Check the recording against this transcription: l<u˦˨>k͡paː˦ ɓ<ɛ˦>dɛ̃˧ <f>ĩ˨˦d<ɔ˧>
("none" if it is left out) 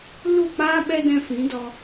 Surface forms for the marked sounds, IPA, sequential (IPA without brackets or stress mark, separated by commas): u˦˨, ɛ˦, f, ɔ˧